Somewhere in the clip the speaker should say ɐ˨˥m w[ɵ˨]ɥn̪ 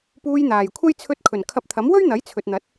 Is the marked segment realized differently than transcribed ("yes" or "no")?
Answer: yes